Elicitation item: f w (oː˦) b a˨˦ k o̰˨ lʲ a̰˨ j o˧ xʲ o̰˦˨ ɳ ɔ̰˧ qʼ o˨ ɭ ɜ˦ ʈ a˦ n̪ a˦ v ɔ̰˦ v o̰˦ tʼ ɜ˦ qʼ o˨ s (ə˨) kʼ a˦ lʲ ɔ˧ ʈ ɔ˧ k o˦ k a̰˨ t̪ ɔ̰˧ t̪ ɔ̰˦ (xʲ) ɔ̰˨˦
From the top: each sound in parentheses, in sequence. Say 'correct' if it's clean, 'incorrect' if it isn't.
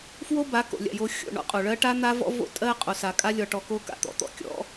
incorrect: o˦, incorrect: a˨, incorrect: kʲ

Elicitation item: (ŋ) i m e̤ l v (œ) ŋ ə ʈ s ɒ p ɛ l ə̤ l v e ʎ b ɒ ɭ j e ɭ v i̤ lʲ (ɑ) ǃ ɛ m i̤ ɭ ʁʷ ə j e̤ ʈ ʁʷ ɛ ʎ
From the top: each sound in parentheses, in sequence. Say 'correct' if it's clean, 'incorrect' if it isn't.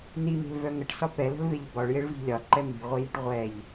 incorrect: n, correct, incorrect: ɒ

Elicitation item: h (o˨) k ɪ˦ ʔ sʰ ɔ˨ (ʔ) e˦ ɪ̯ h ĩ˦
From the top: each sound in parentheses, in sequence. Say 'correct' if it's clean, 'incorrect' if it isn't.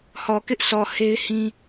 incorrect: ɔ˨, incorrect: h

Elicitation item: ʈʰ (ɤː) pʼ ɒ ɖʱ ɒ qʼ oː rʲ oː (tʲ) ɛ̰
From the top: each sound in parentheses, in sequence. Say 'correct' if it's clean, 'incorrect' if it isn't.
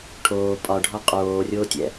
incorrect: oː, correct

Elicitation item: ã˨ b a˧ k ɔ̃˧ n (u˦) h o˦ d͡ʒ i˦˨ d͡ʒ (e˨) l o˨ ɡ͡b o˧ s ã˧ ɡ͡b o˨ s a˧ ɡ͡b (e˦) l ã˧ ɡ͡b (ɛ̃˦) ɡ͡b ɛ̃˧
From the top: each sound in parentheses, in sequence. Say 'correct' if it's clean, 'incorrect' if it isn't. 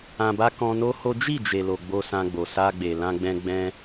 incorrect: o˦, correct, incorrect: e˨, incorrect: ɛ̃˧

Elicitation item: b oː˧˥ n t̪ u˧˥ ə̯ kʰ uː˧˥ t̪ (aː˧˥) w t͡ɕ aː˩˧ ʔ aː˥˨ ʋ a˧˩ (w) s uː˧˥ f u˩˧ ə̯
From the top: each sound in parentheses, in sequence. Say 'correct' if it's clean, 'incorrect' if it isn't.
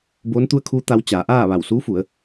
incorrect: a˧˥, correct

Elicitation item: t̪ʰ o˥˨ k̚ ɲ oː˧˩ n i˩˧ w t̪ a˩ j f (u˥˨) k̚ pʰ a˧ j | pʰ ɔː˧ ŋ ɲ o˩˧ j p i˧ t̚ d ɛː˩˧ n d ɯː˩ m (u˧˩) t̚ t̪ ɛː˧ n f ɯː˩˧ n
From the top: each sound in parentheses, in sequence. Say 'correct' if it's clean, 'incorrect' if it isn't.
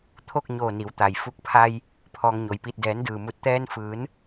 incorrect: u˧, correct

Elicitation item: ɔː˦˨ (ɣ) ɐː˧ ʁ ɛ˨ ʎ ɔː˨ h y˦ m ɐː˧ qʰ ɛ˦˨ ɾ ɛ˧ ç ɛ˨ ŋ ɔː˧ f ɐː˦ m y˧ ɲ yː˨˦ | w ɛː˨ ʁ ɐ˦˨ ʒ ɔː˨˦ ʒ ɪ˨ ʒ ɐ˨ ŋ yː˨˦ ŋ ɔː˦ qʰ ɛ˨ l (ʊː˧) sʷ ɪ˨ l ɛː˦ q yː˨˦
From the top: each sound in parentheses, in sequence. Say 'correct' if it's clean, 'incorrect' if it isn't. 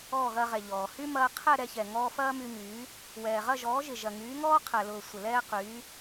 correct, incorrect: ʊː˨

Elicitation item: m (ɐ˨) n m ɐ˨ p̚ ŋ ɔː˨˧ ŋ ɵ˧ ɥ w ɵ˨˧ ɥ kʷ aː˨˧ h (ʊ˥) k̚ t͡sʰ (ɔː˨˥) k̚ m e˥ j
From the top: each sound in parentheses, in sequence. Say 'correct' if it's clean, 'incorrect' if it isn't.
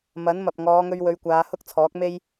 incorrect: ɐ˨˥, correct, correct

